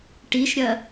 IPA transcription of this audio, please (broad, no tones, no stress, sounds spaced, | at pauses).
ʈ i ʃ ɾʲ ɐ